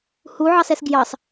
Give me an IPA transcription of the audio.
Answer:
huʕɑsɛs ɡjɑs

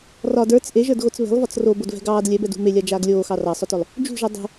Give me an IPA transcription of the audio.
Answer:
rɒd ə˞t͡s ʔeʒə˞dɣot͡s βe̤lˠvɒt͡s robodvɛ̤ ɡɑːd lʲɛbɛdṳ melʲad͡ʒaːɡ lʲoːxɑ rɑsˤœtœlˠ | d͡ʒṳʒi dˤṳ

